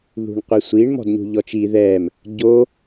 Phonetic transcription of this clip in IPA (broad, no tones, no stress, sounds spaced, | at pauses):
ð ṳ ɳ qʷ i sʷ i ɳ m ɔ̤ d ɲ ṳ ʎ ɔ t͡ʃ i ð ɛ m | ɟ o